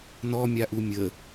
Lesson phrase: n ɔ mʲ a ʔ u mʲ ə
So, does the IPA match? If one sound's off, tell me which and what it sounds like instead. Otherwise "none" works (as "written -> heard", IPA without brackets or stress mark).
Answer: none